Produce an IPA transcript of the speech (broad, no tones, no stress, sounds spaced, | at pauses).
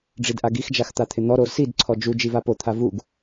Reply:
ɖ͡ʐ i d ʔ a ɡ i x d͡ʒ a x t̪ a t̪ʰ ɪ n̪ ɔ ɾ o s i d ǀʰ ɔ d͡ʒ u d͡ʒ i v a p o t̪ʰ a v u ɡ